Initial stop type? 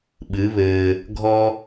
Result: implosive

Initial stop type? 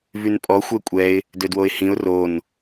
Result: ejective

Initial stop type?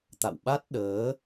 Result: plain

